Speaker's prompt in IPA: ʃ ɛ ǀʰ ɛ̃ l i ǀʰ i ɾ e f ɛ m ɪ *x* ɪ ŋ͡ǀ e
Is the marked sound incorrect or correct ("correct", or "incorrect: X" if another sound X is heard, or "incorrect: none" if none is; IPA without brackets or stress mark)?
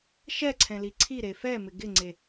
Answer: incorrect: ɡ